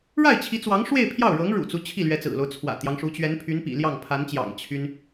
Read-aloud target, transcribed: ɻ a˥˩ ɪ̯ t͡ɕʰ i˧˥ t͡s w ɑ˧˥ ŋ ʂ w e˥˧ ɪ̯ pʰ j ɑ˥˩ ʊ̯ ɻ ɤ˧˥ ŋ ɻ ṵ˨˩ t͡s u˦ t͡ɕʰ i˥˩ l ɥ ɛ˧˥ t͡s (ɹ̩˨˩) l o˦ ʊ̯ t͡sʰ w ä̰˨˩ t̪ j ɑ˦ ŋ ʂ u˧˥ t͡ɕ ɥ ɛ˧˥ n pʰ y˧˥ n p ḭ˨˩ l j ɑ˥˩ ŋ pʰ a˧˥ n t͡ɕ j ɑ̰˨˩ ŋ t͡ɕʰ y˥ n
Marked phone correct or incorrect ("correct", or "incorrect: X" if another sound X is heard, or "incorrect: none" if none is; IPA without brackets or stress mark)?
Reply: correct